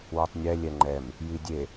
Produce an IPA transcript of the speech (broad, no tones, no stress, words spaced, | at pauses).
wɔtˤnʲɛ lʲɛŋ͡ǃɛm | jidʲe